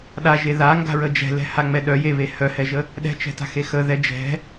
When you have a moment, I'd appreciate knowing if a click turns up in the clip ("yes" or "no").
no